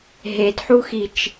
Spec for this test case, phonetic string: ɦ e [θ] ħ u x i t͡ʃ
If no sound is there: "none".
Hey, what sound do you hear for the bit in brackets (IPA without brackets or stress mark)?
d